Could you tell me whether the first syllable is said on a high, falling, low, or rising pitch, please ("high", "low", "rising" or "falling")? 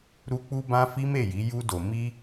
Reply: high